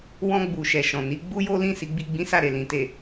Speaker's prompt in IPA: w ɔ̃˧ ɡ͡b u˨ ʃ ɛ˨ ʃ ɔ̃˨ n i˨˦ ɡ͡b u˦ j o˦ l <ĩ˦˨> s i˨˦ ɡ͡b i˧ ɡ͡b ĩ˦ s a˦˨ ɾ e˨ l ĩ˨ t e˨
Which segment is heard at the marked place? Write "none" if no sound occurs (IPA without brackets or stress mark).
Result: ĩ˦˨